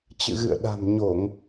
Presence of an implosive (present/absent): present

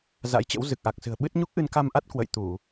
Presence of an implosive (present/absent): present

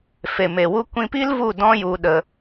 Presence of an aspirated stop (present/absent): absent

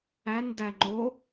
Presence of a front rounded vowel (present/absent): absent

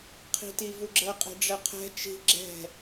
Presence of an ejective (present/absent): present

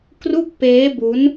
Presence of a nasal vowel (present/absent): absent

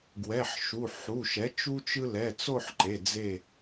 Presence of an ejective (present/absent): absent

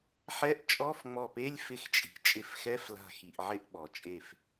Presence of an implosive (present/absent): present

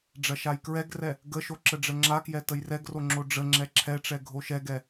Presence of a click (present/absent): present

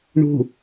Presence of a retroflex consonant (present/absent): present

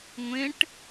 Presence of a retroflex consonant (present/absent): present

